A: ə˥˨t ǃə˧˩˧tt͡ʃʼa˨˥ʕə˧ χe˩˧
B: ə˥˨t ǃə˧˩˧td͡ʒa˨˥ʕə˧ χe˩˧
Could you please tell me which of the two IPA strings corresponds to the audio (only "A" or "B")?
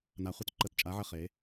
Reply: A